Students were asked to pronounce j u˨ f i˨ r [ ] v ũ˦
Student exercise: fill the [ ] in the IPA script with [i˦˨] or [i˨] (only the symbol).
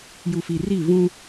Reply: i˦˨